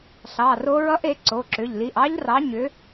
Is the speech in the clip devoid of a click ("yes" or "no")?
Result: no